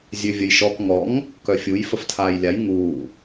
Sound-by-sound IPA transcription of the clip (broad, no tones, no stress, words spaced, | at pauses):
zʲøvʲəjʃɔk ŋɔŋ | kœfʲuj fəftʰaːjlʲaj ŋuː